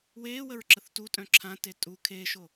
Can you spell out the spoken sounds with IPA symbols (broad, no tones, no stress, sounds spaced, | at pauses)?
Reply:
w eː w ə ɹ ǁ ə θ t u tʼ œ̃ ǁʰ ã t e tʼ u kʰ e ʃ o